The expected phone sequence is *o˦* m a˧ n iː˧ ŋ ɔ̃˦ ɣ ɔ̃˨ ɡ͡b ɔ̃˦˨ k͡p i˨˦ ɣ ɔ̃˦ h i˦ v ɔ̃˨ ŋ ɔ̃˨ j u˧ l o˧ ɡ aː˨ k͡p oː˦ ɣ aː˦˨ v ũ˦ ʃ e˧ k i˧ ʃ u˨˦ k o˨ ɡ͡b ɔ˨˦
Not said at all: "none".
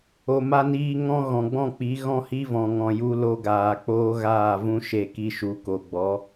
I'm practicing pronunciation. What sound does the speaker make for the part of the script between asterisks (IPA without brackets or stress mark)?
o˨